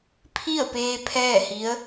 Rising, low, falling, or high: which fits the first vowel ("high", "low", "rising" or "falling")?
falling